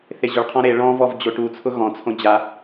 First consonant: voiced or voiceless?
voiceless